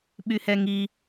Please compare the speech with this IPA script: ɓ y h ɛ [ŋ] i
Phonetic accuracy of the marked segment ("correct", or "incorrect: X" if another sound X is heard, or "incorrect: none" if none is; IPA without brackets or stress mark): correct